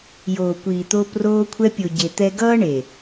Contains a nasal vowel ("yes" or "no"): no